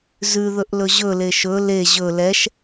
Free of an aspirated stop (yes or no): yes